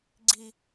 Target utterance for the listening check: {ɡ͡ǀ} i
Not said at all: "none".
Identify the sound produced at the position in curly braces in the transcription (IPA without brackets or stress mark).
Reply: ɡ͡ǀ